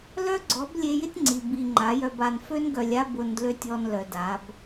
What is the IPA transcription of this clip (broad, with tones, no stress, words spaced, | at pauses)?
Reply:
lœ˦ɡ͡ǀɔ˨˦b lʲe˧jɪ˦tʲŋ͡ǀi˨ bi˨ ŋ͡ǃa˨˦jœ˧ba˧n fø˧nɡœ˨lʲa˧ bʊ˧ndlø˦tʲɔ˧n lœ˨da˨˦b